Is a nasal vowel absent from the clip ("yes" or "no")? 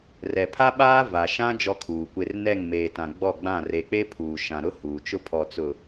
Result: no